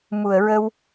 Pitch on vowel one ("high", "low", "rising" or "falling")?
low